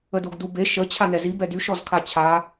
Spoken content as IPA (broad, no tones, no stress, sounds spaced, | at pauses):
ə d o ɡ d u b e ʃ ə t͡ɕʰ a n ɛ z i b ɛ d y ʃ ɔ z kʰ a t͡ɕʰ a